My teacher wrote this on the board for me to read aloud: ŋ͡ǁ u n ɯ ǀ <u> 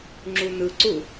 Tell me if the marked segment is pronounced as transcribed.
yes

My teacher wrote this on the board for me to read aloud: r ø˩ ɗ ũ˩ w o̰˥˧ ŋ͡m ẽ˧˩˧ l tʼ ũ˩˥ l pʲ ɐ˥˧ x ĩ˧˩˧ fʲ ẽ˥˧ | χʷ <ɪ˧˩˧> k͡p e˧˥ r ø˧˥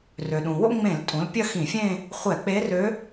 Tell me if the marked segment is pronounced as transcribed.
no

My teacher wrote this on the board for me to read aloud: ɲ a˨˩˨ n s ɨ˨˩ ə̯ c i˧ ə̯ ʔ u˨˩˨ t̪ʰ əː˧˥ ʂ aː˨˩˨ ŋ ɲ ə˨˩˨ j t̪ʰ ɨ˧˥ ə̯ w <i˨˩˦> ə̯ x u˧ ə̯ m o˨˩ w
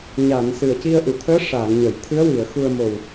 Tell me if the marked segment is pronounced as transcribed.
no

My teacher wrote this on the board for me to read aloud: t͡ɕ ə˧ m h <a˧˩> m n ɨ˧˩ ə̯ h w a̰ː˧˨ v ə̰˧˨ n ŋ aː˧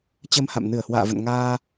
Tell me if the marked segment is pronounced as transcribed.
no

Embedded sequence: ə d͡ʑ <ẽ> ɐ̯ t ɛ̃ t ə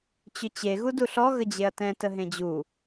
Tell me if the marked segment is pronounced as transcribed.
no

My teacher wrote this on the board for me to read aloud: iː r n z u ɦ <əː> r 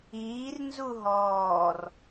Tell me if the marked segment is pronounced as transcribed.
no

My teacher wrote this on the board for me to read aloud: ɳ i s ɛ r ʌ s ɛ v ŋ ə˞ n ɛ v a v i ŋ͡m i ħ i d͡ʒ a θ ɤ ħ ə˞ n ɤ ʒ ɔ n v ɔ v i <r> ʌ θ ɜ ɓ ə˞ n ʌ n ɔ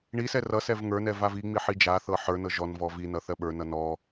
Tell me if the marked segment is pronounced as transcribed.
no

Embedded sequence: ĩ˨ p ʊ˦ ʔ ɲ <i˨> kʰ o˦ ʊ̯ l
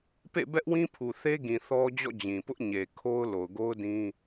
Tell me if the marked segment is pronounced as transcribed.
no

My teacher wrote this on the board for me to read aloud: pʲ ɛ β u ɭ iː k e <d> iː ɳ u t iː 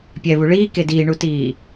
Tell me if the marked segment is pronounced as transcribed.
yes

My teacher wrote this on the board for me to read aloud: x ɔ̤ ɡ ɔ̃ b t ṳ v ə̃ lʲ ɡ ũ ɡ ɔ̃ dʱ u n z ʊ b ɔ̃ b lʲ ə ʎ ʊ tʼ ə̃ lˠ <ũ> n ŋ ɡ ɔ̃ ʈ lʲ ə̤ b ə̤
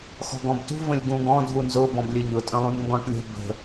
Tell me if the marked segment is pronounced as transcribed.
yes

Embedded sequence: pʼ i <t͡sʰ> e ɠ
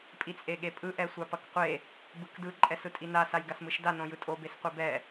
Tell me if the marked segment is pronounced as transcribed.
no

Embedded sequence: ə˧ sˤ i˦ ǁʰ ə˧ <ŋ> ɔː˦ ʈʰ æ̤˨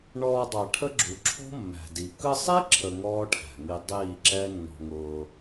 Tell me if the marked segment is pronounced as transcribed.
yes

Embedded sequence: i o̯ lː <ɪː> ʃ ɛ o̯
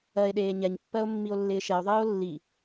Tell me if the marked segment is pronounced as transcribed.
yes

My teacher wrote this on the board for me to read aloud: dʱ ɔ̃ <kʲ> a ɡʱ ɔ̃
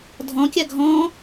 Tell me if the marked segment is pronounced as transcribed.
yes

